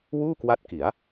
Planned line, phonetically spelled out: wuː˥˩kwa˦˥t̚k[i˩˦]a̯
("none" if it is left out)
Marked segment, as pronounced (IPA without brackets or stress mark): i˩˦